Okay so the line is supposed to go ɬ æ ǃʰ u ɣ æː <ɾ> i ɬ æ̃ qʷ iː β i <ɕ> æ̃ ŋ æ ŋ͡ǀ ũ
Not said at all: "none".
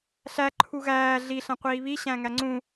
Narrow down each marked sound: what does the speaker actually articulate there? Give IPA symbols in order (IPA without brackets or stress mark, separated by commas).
ɮ, ɕ